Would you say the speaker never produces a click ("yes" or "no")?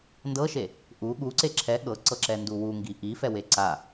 no